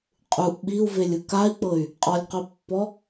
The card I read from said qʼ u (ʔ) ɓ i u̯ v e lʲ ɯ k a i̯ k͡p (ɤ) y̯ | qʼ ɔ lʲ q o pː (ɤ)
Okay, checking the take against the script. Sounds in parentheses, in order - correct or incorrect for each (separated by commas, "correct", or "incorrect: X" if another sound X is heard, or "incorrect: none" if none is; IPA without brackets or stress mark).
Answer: correct, correct, incorrect: ɔ